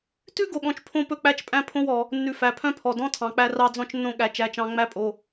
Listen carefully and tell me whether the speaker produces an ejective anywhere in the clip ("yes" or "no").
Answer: yes